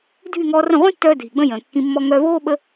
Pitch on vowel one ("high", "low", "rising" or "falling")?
falling